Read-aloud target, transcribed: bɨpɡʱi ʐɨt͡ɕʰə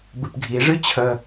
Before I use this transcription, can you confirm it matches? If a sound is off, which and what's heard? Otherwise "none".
none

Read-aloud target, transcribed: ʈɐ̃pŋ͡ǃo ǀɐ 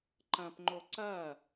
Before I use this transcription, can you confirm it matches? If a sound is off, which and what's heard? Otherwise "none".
ʈ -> ǃ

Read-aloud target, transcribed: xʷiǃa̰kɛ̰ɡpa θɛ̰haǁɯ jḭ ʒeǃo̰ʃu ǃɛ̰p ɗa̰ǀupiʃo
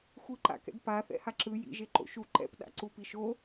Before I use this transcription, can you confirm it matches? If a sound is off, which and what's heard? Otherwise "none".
none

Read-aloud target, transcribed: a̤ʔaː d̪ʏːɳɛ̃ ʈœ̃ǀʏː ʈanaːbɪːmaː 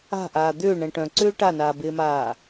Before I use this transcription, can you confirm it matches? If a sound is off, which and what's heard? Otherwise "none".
none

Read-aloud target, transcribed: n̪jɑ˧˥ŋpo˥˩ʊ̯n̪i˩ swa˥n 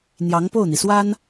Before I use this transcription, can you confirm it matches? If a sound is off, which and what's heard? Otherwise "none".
none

